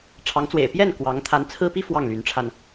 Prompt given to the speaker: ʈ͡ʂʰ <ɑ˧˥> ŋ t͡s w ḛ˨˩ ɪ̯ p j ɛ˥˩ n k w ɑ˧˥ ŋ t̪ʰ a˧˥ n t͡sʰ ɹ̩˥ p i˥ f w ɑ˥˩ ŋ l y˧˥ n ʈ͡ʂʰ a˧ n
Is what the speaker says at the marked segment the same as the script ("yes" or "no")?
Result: yes